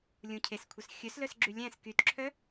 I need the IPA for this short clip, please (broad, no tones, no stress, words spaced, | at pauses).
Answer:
lʲũcʰeskʷʰœs xʲɵslœs ɡ͡ǁylʲæ̃s kytǁʰœ